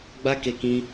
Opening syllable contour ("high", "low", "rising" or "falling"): high